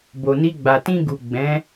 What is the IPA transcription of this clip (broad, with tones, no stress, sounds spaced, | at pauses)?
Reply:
b o˨ n i˧ ɡ͡b a˨ t ĩ˧ ɡ u˨ ɡ͡b ɛ̃˨˦